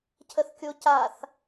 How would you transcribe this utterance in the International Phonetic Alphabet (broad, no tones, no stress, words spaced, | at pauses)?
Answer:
cʰəθkʲocaθ